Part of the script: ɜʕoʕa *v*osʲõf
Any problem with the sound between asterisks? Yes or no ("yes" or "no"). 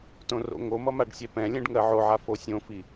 yes